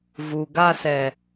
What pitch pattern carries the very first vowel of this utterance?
low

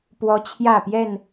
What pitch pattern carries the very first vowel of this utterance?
high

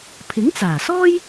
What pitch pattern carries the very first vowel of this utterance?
rising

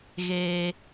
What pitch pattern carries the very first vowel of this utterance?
high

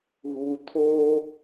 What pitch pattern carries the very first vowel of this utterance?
low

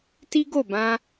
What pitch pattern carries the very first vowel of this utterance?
high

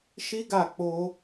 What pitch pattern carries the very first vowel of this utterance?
high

